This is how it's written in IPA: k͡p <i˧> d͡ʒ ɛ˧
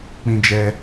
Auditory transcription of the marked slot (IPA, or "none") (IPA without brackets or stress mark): ĩ˧